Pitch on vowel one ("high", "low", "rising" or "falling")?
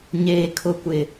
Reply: high